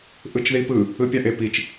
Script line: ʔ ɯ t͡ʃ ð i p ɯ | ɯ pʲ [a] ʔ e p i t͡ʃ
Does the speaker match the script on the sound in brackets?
yes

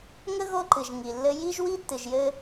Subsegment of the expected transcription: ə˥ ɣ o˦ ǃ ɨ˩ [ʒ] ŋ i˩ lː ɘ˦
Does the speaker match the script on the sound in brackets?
yes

